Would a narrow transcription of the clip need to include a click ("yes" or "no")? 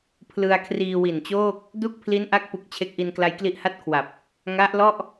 no